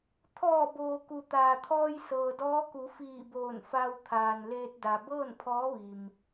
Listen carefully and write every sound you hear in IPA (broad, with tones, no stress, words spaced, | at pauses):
t̪ʰɔː˧˩boː˩ ku˩t̪aː˩t̪ʰɔː˧j sɤː˩dɔː˧˥ku˩˧fiː˧˩ boː˧˩n fa˧wt̪ʰaː˩n leː˧t̚da˩ bɤː˥˨npʰɔː˧˥ʋi˩m